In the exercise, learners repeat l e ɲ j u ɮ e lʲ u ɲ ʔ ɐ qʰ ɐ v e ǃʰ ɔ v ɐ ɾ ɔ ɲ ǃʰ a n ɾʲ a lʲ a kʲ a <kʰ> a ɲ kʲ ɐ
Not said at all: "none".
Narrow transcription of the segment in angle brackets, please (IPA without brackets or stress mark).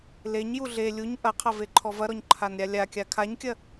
kʰ